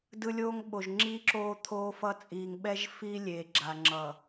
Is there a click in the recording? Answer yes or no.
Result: yes